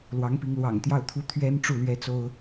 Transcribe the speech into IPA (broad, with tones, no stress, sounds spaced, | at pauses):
l w ɑ˧˥ ŋ p i˧˥ ŋ l w ɑ̰˨˩ ŋ t̪ j ɑ˥˩ ʊ̯ t̪ʰ u˥ t̪ʰ ɥ ɛ˥ n ʈ͡ʂ u˥˩ l ɥ ɛ˥ t͡s o˥ ʊ̯